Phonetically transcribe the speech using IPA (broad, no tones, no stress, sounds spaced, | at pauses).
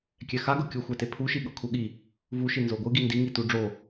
kʲ ɛ x a ɡ ɤ kʲ u xʷ ɛ t e pʰ u ʃ i ɠ ɤ kʰ u ɠ i | v u ʃ i n z o ɡʷ ɯ ɡ i n d i ŋ i t u ɖ͡ʐ o